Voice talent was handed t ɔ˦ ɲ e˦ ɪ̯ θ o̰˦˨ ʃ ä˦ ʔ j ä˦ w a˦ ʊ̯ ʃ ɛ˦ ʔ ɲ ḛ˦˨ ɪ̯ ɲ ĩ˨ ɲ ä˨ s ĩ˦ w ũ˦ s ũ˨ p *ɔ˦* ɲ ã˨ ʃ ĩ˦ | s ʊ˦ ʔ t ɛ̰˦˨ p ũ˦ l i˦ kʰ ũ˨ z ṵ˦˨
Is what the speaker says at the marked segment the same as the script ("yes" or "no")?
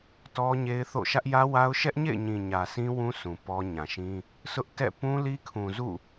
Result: yes